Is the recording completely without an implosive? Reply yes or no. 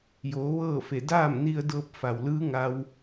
yes